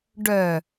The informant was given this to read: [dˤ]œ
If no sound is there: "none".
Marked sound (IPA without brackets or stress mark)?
ɖ